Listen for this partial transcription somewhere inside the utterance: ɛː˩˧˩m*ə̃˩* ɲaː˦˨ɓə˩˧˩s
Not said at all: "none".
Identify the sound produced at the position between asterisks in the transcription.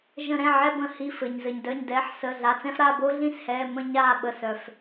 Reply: ə̃˦˨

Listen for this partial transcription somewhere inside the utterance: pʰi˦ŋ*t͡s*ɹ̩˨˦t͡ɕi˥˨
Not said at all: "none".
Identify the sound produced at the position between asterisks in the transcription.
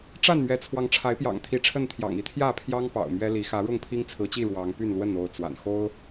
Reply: t͡sʰ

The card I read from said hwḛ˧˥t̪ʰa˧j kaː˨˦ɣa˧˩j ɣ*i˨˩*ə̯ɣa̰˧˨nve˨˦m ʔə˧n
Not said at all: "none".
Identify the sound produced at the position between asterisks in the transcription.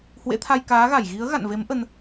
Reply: i˨˦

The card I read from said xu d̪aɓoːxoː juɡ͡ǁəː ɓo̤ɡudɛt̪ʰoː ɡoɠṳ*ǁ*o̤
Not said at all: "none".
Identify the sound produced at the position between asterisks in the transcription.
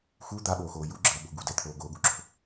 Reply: ǁ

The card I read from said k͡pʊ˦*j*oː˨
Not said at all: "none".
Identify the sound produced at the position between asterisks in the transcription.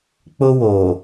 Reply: w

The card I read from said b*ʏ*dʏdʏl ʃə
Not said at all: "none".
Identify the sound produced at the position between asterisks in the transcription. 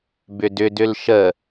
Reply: ʏ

